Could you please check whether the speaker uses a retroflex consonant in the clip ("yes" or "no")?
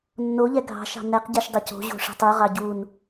yes